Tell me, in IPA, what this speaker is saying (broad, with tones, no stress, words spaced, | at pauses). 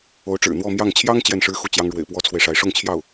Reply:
o˧˥ʊ̯ʈ͡ʂɻ̩˨˩ n̪wɔ˥˧mjɑ˥˩ŋ t͡ɕʰjɑ˥ŋ t͡ɕjɛ˥˩nʂɻ̩˥xu˥˩ t͡ɕjɑ˥ŋ ɻwḛ˨˩ɪ̯pwɔ˥t͡sʰwe˨ɪ̯ʂa˧˥ɪ̯ ʂʊ˥˧ŋt͡ɕʰjɑ˥˩ʊ̯